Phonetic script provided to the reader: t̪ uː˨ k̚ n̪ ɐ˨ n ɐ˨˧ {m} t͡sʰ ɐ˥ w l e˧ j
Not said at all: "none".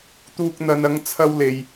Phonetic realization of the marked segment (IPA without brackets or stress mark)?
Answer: ŋ